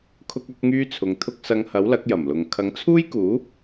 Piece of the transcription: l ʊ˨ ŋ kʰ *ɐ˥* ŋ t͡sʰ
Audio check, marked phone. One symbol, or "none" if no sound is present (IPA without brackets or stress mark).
ɐ˨˥